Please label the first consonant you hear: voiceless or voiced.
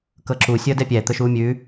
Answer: voiceless